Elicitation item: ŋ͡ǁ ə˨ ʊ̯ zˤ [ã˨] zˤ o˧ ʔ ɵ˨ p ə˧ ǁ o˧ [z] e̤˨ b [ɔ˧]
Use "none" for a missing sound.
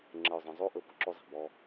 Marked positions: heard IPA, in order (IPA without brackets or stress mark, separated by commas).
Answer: ə̃˨, zˤ, ɔ˧